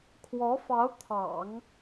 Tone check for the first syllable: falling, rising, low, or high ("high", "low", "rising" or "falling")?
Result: rising